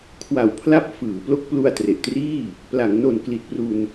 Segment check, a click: absent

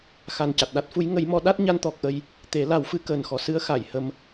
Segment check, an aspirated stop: absent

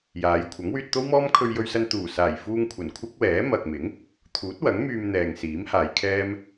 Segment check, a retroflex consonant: absent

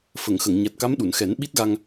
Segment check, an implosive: present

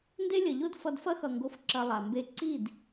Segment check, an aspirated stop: absent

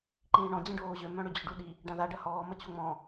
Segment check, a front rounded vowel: present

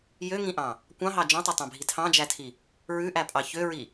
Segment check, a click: absent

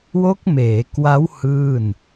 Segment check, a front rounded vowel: absent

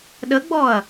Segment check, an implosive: present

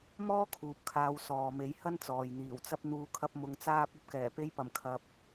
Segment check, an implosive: absent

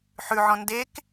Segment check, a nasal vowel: present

